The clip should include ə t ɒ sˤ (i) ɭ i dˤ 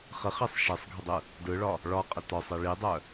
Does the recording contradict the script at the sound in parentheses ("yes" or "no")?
no